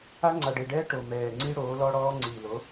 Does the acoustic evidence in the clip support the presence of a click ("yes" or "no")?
yes